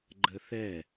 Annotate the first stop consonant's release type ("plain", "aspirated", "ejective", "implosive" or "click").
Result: click